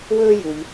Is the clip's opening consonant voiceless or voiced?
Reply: voiced